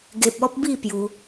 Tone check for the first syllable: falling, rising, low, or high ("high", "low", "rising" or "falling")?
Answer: high